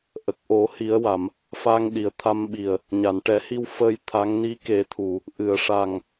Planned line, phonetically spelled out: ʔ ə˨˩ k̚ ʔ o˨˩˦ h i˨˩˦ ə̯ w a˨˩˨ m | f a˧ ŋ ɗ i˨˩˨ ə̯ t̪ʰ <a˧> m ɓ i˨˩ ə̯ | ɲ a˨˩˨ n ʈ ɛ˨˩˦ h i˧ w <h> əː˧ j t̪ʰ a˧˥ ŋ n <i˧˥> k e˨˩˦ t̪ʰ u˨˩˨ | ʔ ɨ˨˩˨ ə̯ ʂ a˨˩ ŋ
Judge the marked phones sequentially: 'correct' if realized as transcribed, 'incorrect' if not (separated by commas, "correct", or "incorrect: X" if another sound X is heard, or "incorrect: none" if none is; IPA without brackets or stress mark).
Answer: correct, incorrect: f, correct